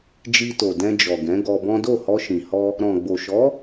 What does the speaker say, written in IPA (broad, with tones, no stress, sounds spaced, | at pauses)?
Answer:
d͡ʒ i˧ t o˨ d ɛ̃˧ d͡ʒ ɔ˨ ɡ ɛ̃˨˦ ɡ ɔ˧ b ɔ̃˦ d o˦˨ h ɔ˧ ʃ ĩ˨ h ɔ˧ | ɾ ɔ̃˨ ɡ͡b o˨ ʃ ɔ˨˦